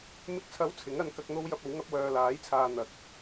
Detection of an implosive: absent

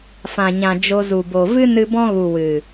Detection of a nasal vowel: present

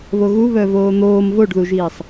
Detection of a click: absent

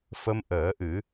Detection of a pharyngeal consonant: absent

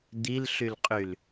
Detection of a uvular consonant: present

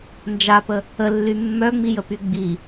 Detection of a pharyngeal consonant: absent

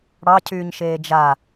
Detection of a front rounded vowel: present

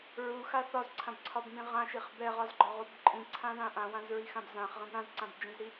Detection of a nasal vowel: present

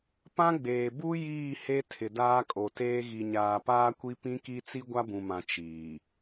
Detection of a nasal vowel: present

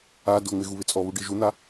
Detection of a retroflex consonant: present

